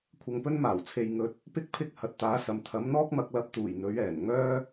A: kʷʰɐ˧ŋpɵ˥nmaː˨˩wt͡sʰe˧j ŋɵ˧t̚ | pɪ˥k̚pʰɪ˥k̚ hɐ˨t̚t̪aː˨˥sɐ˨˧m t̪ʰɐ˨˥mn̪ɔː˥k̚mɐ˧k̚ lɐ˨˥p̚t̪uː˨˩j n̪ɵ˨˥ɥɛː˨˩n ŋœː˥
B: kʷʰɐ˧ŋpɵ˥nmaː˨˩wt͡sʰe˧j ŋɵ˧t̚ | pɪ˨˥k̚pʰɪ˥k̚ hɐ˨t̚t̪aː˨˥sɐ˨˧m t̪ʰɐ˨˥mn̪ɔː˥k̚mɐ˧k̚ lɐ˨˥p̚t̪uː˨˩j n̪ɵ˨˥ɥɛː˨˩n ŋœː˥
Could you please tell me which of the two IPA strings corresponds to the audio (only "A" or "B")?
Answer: A